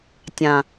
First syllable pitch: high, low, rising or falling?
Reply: low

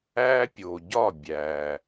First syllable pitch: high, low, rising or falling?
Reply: high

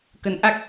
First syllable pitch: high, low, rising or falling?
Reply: rising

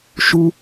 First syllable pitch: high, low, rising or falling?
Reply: high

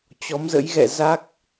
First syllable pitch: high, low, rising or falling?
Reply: rising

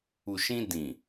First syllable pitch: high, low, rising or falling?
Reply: low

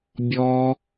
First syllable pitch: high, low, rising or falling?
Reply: high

